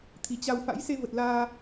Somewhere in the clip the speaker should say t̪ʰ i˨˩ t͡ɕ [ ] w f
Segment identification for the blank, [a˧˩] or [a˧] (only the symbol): a˧